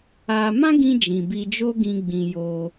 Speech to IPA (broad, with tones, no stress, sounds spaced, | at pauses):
a˧ m ã˦ ɡ ĩ˧ d͡ʒ ĩ˨ b i˧ d͡ʒ o˦ ɡ ĩ˧ ɡ͡b ĩ˧ j o˧